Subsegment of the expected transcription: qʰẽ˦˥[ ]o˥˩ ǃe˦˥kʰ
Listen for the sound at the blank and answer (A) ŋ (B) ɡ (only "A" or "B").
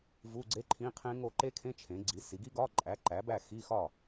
A